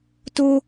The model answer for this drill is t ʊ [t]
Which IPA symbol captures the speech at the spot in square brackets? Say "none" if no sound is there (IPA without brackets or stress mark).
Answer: none